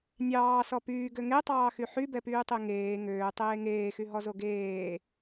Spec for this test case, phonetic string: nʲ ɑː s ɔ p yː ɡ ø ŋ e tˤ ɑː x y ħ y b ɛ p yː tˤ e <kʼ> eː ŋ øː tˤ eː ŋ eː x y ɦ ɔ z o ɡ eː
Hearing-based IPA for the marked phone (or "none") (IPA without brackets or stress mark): ŋ